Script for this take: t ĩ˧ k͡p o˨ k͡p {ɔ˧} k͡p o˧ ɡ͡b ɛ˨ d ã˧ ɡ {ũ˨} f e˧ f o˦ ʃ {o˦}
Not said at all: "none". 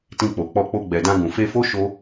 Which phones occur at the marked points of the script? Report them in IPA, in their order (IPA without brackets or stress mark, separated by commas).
ɔ˧, ũ˨, o˦